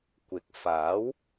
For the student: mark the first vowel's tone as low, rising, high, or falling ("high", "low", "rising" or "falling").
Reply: rising